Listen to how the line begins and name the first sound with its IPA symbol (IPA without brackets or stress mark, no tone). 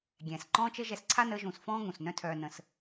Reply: ɡʲ